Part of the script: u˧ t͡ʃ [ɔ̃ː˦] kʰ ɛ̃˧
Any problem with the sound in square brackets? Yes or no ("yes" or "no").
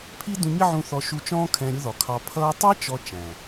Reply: no